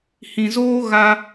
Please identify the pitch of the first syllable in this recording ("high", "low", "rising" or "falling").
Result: low